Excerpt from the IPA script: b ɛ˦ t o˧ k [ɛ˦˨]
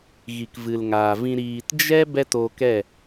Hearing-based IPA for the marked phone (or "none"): ɛ˦˨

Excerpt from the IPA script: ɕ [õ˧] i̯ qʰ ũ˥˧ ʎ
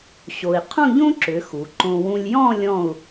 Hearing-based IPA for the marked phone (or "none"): o˧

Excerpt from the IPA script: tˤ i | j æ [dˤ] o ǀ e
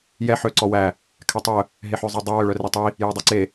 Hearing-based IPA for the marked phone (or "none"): dˤ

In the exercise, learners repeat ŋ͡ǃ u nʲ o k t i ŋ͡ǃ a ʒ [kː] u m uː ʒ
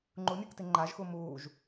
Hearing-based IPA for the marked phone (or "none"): x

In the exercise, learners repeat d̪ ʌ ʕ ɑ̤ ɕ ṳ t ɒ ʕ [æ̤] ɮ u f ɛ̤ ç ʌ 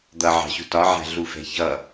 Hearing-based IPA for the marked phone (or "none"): æ̤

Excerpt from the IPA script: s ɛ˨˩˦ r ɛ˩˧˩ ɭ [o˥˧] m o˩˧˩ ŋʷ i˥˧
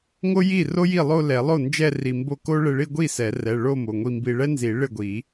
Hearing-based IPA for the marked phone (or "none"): o˥˧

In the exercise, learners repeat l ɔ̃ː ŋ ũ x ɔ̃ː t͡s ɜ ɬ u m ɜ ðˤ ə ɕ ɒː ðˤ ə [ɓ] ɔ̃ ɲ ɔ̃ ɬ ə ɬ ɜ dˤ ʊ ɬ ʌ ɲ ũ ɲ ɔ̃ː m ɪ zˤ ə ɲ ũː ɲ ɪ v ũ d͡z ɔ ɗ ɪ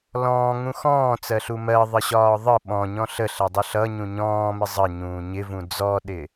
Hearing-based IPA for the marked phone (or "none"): ɓ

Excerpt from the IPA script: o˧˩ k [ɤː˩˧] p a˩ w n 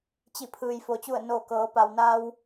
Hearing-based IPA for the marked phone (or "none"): ɤː˩˧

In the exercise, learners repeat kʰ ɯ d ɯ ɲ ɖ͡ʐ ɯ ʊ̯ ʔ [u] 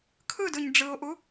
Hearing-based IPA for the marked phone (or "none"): u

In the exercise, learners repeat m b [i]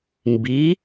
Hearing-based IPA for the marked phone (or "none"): i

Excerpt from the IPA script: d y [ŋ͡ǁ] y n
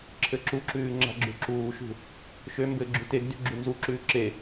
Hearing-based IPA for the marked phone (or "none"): ɡ͡ǁ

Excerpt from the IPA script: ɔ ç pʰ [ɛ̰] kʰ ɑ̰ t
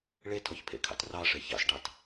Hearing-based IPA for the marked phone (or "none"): ḛ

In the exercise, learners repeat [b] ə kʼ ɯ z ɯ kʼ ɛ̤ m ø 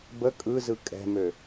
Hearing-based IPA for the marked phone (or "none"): b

